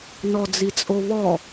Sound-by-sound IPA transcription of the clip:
n ɔ d͡z i t͡sʼ o β ɔ

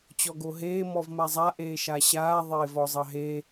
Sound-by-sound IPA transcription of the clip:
t͡ɕ ɔ ɡ o ɦ eː m ɔ v m a zˤ a ʔ eː ʃ a ɕ aː ðˤ eː v ɔ zˤ ɑ ɦ eː

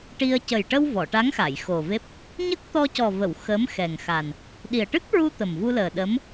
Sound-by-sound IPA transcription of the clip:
ʈ i˧ ə̯ c ə˨˩ j ʈ ə˧ w v ɔ˨˩˨ ʈ a˧˥ ŋ x a˨˩˨ j x o˨˩ v e˦˥ p̚ | ɲ ə˦˥ k̚ t̪ ɔ˧ c ɔ˨˩ v ə˨˩˨ w x ə˧˥ m x ɛ˨˩ ŋ x a˨˩ n | ɗ i˨˩ ə̯ ʈ ɨ˦˥ k̚ ɹ u˧ t̪ ə˨˩ m v u˧ l əː˨˩ ɗ ə˧˥ m

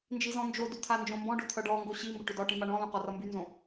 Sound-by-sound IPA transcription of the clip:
n d͡ʒ i z ɔ̃ n d͡ʒ o d y t̪ʰ a n d͡ʒ õ m b ɔ̃ ɖ o t̪ʰ ʌ ɖ ɔ ŋ ɡ o ɕ i m b ʏ ʈ ʏ d ɒ ʈ ĩ m a ɳ ɔ̃ l õ q ɔ r ʌ m b y n z õ

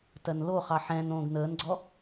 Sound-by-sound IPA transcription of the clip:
t ɜ n l o χ ɑ ħ ɛ̃ n õː ɡ n əː n ɡ͡ǀ ɔ

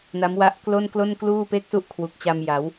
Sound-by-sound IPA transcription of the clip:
n a˦˥ m w a˦˥ ʔ k l o˥˩ n k l o˥˩ n k l uː˥˩ p e˥˩ k̚ s u˥˩ ʔ kʰ w u˨˩ k̚ t͡ɕ a˧ m j a˩˦ w

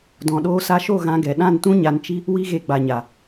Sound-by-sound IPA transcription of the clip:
d ɔ̃˨ ɗ oː˧ s a˧ ʃ o˦˨ ɣ ã˧ ɡ ɛ˨ ɗ ã˦˨ n t ũ˦ ɲ a˧ n t͡ʃ i˦ | w i˦ ɣ e˧ ɡ͡b a˨ ɲ a˨

